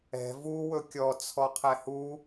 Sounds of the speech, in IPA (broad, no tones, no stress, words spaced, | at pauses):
ɛ̤ vu wɵkʲɔ t͡sʰɔqʰɛhu